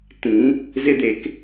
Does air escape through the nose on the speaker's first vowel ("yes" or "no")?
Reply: yes